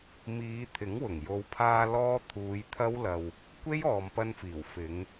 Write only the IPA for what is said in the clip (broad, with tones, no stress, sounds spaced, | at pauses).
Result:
m iː˨˧ t̪ʰ ɪ˨˥ ŋ w ʊ˨˩ ŋ j o˨˧ w pʰ aː˧ l ɔː˥ t̪ʰ uː˨˧ j t̪ʰ ɐ˥ w l ɐ˧ w | kʷ e˥ j ɔː˨ m p ɐ˧ n f iː˨˩ w f ɪ˨˧ ŋ